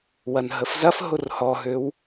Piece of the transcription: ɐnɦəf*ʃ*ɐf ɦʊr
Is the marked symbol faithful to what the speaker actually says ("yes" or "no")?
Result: no